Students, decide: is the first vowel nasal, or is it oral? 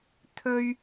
oral